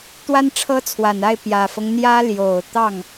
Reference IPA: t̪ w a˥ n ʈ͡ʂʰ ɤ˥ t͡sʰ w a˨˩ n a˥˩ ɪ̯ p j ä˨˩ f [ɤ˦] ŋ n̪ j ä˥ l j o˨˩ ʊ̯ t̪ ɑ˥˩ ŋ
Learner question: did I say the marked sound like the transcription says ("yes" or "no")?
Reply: yes